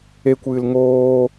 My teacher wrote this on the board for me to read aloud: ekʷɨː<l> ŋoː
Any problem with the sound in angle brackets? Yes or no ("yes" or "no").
no